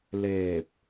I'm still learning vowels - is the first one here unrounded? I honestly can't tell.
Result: yes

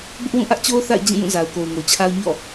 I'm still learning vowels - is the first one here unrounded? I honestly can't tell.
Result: no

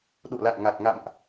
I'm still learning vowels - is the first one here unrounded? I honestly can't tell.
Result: no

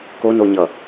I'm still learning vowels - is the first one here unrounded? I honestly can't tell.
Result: no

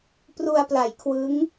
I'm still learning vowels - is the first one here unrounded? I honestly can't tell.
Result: no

